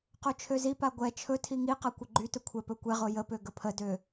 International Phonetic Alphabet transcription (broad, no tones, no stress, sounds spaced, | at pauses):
q o t͡ʃʰ ø z i p a ɡʷ ɛ t͡ʃʰ ɵ tʰ i ŋ i q a kʷ ə ɡ͡ǃ y t ɵ kʷʰ ɛ p ɵ kʷ ɛ ʁ o j ə p ø ɡ ə pʰ ə d ø